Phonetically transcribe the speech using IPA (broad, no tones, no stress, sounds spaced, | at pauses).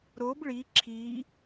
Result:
ɾ o b ɭ i ǁʰ i